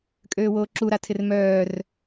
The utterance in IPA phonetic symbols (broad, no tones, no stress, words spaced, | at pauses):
kʼøːwoːǁu ɾatʰɪrmœːr